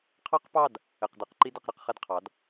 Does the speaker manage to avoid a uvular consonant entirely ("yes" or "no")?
no